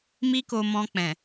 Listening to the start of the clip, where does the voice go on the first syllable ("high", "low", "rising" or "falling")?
high